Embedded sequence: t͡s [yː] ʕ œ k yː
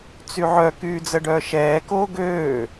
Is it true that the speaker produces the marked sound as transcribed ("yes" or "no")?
no